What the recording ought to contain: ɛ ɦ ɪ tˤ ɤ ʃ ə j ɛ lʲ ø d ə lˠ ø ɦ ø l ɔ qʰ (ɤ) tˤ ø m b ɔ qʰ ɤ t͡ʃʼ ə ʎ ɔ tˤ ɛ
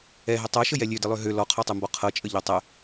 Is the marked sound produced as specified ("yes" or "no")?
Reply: no